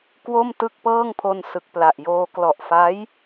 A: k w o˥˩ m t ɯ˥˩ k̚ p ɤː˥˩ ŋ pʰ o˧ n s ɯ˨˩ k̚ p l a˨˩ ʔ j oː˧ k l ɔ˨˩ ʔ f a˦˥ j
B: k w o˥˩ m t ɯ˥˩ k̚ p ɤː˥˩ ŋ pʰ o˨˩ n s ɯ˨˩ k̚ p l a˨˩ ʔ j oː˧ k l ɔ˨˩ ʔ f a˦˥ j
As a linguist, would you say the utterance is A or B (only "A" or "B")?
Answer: A